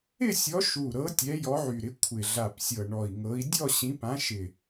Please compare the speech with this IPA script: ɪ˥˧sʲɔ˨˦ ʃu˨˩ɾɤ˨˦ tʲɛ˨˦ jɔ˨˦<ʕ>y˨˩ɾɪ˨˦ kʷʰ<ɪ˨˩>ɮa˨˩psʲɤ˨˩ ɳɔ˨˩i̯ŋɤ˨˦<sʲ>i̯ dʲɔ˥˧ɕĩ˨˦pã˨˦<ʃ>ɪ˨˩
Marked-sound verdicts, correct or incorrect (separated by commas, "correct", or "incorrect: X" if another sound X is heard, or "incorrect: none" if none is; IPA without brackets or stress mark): correct, correct, incorrect: none, correct